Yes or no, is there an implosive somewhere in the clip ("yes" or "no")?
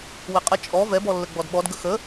yes